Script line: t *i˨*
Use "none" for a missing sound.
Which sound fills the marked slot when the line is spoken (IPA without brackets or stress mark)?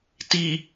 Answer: i˨